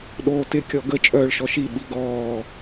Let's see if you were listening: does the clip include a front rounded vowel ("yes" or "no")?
yes